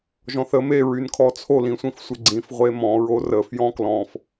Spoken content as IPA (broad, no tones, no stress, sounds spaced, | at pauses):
ʒ ɔ̃ θ ə m e ɹ y n kʰ ɔ t͡sʰ o l ĩ sʷ ĩ f sʷ e ɡ͡ǀ ĩ f ʁʷ e m ɔ̃ ɹ o r ə f j ɔ̃ k l ɔ̃ f